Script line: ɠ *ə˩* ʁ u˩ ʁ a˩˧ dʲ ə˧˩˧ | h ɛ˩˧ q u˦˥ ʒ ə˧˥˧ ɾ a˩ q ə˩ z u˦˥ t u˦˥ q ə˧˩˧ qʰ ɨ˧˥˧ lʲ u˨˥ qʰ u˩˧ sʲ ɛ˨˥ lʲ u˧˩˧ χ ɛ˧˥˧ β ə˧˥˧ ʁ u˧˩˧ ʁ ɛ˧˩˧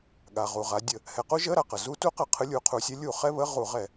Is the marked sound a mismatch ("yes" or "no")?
yes